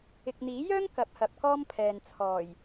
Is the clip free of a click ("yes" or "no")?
yes